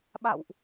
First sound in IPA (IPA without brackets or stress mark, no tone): ɓ